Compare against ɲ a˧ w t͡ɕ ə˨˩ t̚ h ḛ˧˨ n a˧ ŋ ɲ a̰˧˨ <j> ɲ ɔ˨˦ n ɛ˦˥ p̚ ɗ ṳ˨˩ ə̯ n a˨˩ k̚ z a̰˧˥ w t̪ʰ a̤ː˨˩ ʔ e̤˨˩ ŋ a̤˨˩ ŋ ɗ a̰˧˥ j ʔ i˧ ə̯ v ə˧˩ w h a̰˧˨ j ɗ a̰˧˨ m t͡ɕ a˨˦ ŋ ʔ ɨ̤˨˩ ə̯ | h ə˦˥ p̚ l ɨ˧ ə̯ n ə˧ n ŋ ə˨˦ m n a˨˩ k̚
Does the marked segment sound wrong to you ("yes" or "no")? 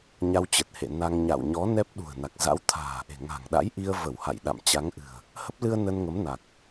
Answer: yes